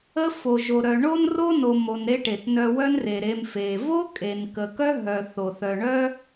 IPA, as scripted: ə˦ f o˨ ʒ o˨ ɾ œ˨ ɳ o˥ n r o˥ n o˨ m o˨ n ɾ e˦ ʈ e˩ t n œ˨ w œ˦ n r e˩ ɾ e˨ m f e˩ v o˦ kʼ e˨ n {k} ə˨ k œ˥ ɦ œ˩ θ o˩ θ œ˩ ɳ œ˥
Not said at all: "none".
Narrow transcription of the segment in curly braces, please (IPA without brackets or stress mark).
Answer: k